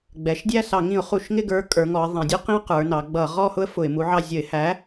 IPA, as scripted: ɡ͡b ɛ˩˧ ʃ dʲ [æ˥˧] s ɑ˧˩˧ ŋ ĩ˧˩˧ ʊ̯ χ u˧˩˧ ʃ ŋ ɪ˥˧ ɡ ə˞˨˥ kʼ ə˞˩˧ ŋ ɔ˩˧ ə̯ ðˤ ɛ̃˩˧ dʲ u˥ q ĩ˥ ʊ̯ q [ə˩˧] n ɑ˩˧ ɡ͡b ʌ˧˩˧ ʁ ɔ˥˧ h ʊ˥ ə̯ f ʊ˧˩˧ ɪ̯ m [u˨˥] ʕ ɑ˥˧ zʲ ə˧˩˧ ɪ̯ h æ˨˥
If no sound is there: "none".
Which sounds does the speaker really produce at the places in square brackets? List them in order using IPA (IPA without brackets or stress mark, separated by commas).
æ˥˧, ə˞˩˧, u˨˥